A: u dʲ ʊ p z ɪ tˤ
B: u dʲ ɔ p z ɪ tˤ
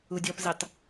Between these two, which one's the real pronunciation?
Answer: B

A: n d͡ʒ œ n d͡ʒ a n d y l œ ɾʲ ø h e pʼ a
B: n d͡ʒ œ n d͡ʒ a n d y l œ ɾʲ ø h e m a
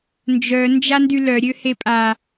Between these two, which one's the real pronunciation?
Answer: A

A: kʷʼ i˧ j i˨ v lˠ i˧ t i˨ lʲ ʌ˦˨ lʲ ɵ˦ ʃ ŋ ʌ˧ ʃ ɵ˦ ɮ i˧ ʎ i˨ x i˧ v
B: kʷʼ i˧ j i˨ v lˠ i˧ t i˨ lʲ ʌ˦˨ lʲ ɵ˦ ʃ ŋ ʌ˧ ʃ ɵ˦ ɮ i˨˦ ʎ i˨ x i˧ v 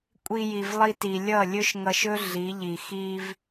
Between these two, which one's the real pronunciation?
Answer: B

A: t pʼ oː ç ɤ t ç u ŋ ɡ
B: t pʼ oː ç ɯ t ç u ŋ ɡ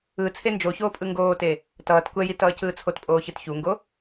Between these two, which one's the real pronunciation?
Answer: B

